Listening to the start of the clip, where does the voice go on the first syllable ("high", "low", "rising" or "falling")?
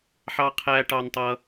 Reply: high